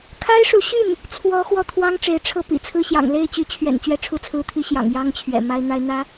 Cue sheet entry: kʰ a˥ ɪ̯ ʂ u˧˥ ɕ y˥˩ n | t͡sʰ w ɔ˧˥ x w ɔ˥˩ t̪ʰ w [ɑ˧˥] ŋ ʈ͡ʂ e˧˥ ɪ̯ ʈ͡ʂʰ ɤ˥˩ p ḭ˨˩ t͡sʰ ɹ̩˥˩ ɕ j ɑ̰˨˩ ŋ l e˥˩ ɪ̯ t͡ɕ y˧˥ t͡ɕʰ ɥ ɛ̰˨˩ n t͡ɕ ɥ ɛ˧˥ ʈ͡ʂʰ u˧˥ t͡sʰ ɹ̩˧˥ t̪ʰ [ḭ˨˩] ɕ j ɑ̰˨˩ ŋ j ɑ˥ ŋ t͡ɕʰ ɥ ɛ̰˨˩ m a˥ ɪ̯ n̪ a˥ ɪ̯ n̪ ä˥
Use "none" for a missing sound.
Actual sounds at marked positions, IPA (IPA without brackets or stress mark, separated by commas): ɑ˥, i˧˥